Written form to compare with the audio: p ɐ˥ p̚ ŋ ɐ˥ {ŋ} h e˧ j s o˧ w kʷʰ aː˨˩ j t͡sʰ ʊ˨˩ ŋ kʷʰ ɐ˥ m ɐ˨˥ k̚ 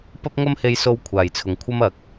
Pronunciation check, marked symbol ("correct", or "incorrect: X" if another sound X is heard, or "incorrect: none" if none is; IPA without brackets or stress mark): incorrect: m